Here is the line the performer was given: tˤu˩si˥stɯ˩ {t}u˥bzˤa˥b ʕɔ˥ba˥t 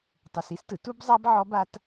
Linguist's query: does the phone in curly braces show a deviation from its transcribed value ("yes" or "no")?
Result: no